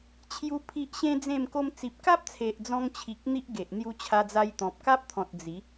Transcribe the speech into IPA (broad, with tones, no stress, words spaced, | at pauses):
t͡ɕʰju˧ pʰi˦ʔ ɕẽ˦d͡zẽ˥˧mko˦m t͡si˨p̚ka˦p̚t͡sʰe˨ʔ d͡zɔ̃˧ŋt͡ɕʰi˨k̚ n̪i˦ʔɡe˨ʔ n̪ju˧t͡ɕʰa˧d͡za˧jt̪ɔ̃˨p̚ ka˦p̚t̪ʰɔ̃˨t̚ d͡zi˨˦